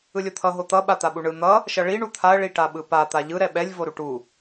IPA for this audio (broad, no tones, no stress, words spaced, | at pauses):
ɯlʲot̪ʰʌ ɦot̪ʌ ɓat̪aɓuɳɯ n̪ʌ | ʃʌɭi ɳut̪ʰaə̯ ɭiʈaɓɯpa t̪aʎɯ ɾɛɓɛlʲ voɾuʈu